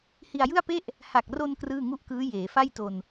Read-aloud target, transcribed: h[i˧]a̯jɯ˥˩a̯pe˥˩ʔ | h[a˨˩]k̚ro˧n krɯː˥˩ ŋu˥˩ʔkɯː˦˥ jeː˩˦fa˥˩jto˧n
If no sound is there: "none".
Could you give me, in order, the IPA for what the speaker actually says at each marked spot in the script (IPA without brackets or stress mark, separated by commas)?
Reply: i˧, a˨˩